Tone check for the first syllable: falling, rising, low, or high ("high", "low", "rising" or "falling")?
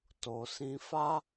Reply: low